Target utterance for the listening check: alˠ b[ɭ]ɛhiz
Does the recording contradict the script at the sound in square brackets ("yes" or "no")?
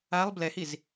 yes